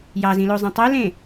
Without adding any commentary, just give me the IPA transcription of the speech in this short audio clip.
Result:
j ɑ z ĩ l o zˤ ĩ tˤ ø l ẽ

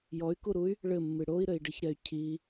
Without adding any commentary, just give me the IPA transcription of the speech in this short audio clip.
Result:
j ɔ y̯ k u ɾ u y̯ | ɭ ɘ mː ɨ ɽ o i̯ ɾ ɘ i̯ ɖ ɨ ç ɾ ɛ y̯ cʰ i

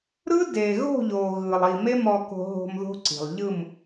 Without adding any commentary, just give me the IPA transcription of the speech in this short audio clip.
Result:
ɾ ɯ˦ d e˨ ɣ o̤˦˨ ʎ o˨ ɣ ɯ˨ lˠ i˨ m e˦ m ɔ˨ k o̤˨ ɦ o̤˨ m ð o̤˦ ǀ i̤˨ lˠ ʎ ɯ˦˨ m

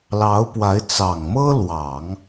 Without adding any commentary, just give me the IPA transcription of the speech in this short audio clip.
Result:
l ɑ˧˥ ʊ̯ p w a˧˥ ɪ̯ t͡s ɑ˨˩ ŋ m ɤ˥ l w ɑ˨˩˦ ŋ

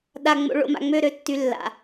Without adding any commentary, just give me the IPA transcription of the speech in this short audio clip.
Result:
ɗ a˨ ŋ͡m o̰˨ ɭ o̰˨ m a̰˨ ŋ͡m ø˦˨ ɾ ø˦ tː y˨ lː a̰˨

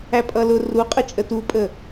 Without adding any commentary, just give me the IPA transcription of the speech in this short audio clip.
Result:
æ pʼ ʌ l ʊ r u qʼ ə t͡ʃʼ ə t u pʼ ə

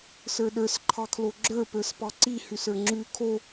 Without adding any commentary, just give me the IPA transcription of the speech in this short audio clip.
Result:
s ə˞ ɗ ə˞ s ǃʰ ɑ kʰ l o ɡ͡ǁ ə˞ p ə˞ s p ɑ ǀ i h ʉ s ə˞ ŋ͡ǁ ʉ kʰ o

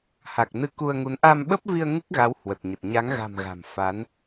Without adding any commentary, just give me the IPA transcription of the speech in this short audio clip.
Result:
h a˨˩ k̚ n ɨ˧ k u˧ ə̯ ŋ u˨˦ n ʔ a˧ m ɓ ə˦˥ p̚ v i˧ ə̯ ŋ ɨ˦˥ k̚ ɣ a˨˦ w h w ə˨˩ t̚ ɲ ə˨˩ t̚ ɲ a˨˦ ŋ ɣ a̤˨˩ m ɣ a̤˨˩ m f a˨˦ n

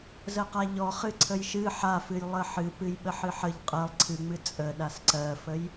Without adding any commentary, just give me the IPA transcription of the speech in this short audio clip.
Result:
z ə q a ʎ ɔ χ ɨ ǀʰ ə j ʃ ɨ ħ a f ɨ j lˠ ə ħ ɨ p ɨ j ɓ ə ħ ɨ ħ ə ʎ qʼ ɜ lˠ ǀʰ ɨ ŋ͡m ɨ t͡sʼ ə ɗ a s ǀ ɜ f ə j

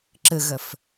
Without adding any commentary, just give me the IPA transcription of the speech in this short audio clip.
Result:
ǁ ə ɣ ɐ f

